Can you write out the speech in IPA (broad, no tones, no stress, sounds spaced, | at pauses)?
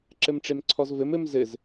ǁ ɘ m ʈ͡ʂ e m ǀʰ ɔ z v ɘ m ɘ m z ɘ z